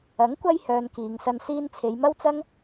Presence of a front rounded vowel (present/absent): present